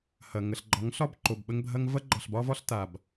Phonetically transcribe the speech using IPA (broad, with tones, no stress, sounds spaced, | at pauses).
h ɐ˨ ŋ ə˨ ɬ ɡ͡ǃ ɒ˨˦ ŋ ɬ ɒ˦ b ǃ o˨ b ɓ ə˦ ŋ bʱ ɐ˦ ŋ v ɐ˦ ɡ͡ǃ ɒ˨ ɬ b ɒ˦ v ɒ˦ ɬ t a˨ b